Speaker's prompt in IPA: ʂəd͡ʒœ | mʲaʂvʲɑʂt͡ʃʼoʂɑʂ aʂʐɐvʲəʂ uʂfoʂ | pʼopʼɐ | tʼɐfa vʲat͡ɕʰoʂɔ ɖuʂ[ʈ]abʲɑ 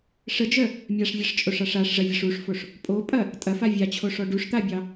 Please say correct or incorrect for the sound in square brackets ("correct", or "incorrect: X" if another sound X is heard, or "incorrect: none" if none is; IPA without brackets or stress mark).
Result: incorrect: t̪